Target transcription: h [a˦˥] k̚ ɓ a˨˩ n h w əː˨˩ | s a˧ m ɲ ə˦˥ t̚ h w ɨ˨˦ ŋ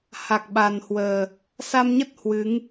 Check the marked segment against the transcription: incorrect: a˨˩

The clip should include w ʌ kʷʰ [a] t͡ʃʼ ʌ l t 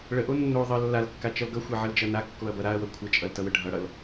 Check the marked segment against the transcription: incorrect: ə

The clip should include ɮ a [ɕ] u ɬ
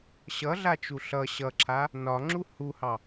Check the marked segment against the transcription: incorrect: t͡ʃ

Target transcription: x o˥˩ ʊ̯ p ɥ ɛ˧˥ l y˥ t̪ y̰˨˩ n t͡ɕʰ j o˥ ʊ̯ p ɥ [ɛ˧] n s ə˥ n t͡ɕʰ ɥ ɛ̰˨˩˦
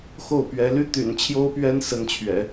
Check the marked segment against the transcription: incorrect: ɛ˥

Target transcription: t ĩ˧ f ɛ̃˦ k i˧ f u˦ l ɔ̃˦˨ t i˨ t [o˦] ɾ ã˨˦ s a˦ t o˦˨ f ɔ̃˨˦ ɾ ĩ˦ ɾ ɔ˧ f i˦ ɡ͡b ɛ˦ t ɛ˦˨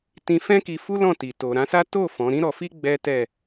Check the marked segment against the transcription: incorrect: o˨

